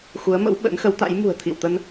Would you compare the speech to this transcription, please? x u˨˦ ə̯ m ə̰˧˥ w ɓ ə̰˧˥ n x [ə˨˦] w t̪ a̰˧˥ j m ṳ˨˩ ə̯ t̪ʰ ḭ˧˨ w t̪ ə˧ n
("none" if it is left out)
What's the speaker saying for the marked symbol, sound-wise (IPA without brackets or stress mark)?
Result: ə˨˦